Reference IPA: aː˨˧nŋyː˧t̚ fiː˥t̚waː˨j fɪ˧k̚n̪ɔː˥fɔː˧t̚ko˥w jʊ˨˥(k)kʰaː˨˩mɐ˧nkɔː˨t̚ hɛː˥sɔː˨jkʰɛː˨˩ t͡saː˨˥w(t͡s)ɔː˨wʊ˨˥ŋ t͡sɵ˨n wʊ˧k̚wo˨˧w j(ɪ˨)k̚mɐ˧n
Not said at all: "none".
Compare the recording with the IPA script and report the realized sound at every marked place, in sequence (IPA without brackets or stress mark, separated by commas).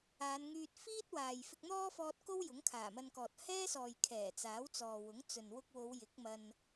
ŋ, t͡s, ɪ˨˥